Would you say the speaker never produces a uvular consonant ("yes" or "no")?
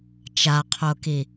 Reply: no